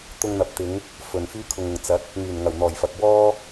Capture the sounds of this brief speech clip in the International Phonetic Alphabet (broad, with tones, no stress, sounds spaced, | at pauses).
t̪ ʊ˧ ŋ n̪ ɐ˨ p̚ t̪ ɪ˨˧ ŋ | f ɵ˨ n f yː˥ kʰ ʊ˧ ŋ ʊ˨ ŋ t͡s ɐ˨˥ t̚ | ŋ yː˨˩ n ŋ ɐ˨˩ w n̪ ɔː˨˩ j f ɐ˨ k̚ w ɔː˥